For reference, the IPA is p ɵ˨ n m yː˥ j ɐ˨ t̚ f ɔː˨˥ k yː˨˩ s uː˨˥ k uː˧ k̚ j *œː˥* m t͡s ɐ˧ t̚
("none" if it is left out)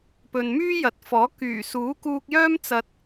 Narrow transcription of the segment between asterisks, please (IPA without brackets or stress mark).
œː˥